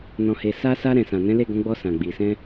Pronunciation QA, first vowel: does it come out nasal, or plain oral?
nasal